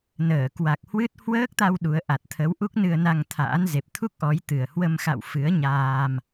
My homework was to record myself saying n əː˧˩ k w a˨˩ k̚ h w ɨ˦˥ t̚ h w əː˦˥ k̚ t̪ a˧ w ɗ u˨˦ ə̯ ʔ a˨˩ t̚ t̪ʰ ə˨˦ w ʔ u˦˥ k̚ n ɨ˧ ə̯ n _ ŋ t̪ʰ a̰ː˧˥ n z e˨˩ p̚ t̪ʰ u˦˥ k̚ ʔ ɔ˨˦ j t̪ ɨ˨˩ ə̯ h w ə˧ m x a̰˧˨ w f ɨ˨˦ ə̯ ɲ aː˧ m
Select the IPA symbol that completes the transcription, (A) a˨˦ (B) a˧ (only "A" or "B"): B